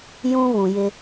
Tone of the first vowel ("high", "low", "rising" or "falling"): high